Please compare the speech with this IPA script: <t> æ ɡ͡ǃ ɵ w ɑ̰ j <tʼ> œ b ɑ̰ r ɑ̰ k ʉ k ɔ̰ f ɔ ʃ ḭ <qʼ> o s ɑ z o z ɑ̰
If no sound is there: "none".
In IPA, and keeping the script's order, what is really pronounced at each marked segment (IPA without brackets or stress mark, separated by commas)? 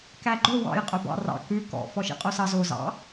k, qʼ, qʼ